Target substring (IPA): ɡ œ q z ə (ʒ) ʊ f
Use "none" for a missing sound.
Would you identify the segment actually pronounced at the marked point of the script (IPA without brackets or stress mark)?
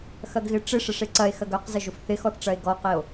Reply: ʒ